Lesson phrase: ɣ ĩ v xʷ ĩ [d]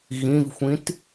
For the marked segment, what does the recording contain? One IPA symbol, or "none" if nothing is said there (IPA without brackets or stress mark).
t